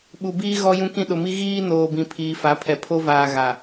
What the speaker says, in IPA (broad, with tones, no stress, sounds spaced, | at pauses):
ɓ u˨ b iː˦ ɣ ɔ˦ j ũ˦ k ĩ˦ ɗ ʊ˨ m i˦ ɣ iː˦ n oː˨ b ĩ˨ pʰ iː˨ f a˨˦ pʰ ɛ˨ pʰ o˦ v aː˨ ɣ a˨